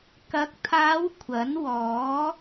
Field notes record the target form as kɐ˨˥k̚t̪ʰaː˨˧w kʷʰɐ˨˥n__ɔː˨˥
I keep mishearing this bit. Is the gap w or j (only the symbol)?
w